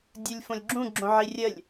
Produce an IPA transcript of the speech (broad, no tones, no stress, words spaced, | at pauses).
dʲulʲfõlʲɡ͡ǁũ ɡ͡ǁõʕirʲəlʲ